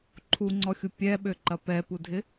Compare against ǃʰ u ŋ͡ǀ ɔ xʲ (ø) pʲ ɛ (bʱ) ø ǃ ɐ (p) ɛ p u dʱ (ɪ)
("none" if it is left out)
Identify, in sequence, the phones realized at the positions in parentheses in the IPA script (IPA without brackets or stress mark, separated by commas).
u, ɓ, p, ɪ